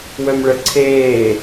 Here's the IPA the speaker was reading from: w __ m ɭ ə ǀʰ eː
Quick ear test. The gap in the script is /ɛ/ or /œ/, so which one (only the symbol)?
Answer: œ